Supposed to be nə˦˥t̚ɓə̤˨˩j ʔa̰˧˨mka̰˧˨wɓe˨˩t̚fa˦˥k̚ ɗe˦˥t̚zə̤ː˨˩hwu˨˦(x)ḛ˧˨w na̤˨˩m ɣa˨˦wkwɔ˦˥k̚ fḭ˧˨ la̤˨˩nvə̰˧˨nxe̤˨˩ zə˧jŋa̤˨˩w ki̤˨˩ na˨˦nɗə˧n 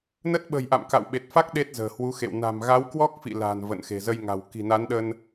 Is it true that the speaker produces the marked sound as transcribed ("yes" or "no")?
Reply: yes